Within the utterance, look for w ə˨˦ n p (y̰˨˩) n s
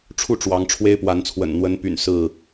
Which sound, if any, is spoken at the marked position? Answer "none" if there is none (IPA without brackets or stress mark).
y̰˨˩